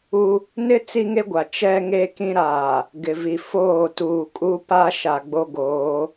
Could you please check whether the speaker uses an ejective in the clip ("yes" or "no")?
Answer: yes